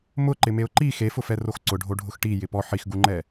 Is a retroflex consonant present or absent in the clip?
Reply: present